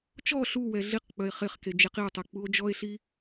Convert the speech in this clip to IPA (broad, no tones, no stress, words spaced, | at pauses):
t͡ʃɔ ɬuwɛ ɮiqk͡pœe̯ χeχke d͡ʒeqio̯tˤe k͡puo̯d͡ʒɔe̯ɬi